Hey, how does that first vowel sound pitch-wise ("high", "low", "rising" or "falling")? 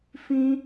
high